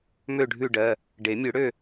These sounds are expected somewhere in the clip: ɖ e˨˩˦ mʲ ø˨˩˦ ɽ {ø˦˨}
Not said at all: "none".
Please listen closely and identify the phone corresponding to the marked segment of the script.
ø˦˨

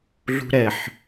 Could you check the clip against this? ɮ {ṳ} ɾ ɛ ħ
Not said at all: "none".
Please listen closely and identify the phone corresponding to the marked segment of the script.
ṳ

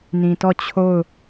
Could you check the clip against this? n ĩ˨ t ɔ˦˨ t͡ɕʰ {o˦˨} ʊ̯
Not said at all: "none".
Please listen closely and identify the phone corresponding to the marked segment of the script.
o˦˨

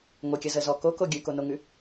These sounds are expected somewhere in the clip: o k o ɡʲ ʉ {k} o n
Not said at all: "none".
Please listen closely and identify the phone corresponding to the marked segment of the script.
k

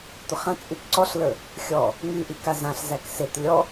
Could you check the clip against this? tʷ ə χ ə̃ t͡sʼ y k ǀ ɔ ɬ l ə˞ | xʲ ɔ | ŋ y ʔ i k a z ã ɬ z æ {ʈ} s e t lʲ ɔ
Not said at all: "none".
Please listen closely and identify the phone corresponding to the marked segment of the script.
k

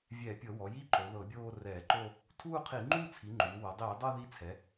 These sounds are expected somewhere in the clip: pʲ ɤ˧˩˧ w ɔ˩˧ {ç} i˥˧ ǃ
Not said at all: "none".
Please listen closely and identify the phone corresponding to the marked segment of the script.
j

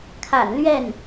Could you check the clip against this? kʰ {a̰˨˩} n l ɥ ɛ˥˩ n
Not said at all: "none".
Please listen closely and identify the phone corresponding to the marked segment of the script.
a̰˨˩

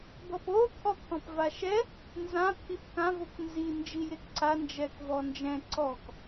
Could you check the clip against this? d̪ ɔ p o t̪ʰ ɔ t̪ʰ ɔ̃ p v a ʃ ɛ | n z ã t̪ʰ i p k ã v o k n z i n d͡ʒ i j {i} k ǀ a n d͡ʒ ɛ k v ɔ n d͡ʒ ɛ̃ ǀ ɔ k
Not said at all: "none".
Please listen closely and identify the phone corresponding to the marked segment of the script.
e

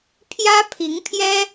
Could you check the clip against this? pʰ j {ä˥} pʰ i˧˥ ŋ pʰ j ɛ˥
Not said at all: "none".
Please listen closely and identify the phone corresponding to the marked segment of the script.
ä˥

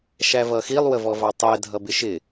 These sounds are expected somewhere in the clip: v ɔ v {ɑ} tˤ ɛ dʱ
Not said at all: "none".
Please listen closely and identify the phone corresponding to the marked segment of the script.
ɑ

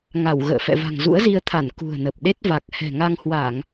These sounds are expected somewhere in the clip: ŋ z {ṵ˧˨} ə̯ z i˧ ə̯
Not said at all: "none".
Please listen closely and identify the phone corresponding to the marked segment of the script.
ṵ˧˥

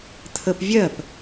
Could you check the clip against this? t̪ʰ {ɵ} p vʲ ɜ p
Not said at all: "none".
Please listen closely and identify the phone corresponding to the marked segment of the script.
ə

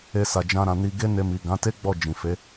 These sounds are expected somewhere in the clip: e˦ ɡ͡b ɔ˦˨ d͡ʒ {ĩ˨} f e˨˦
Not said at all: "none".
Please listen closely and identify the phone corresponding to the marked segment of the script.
ĩ˨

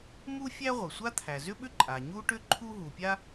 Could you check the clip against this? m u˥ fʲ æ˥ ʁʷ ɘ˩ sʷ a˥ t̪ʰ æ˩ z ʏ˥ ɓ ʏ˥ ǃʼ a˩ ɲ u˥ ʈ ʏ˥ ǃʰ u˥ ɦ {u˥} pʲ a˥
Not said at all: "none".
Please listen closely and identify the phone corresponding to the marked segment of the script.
u˩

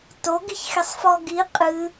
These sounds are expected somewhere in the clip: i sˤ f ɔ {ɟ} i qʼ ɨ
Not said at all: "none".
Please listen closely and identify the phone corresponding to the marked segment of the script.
ɡ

